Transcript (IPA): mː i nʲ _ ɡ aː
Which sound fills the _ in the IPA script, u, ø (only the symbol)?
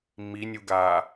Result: u